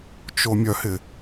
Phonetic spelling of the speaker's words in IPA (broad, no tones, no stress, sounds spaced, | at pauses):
t͡ʃ o mʲ œ h ɪ